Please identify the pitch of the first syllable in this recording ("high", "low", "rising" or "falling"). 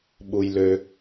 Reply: low